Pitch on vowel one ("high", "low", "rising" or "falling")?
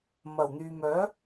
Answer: low